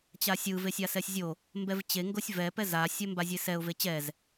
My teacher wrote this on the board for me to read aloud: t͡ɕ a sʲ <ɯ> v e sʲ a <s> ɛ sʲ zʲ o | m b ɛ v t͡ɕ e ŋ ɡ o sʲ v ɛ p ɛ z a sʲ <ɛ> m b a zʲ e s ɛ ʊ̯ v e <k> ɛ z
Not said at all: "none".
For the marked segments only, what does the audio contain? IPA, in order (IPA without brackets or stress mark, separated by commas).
ɯ, s, ɛ, t͡ɕ